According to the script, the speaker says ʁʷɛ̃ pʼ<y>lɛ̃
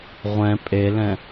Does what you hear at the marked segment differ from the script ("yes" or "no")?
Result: yes